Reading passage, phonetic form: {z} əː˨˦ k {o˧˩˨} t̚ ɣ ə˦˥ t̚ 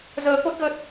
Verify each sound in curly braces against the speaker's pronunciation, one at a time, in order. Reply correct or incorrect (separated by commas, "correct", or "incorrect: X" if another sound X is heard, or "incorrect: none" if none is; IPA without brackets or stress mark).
correct, incorrect: o˦˥